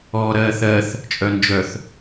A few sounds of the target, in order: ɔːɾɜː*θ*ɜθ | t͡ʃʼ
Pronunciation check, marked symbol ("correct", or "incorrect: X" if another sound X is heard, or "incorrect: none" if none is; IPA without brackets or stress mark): correct